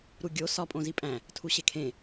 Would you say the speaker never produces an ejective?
no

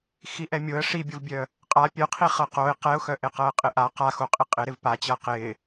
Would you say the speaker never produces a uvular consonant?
no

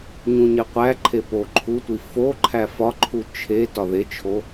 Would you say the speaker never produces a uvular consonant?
no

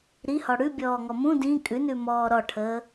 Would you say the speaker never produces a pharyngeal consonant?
yes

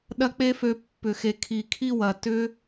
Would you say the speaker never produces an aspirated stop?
no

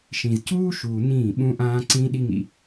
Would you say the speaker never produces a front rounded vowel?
yes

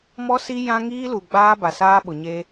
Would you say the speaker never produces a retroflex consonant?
yes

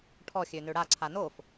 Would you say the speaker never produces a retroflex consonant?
no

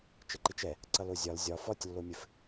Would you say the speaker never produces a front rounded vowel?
yes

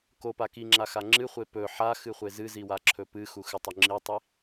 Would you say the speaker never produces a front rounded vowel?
yes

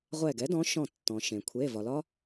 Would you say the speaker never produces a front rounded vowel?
yes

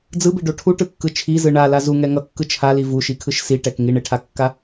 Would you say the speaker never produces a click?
yes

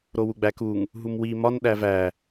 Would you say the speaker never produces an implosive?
no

